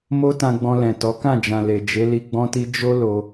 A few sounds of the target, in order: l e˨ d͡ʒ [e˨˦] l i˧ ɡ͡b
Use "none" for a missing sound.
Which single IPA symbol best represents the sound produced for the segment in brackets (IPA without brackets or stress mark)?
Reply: e˨˦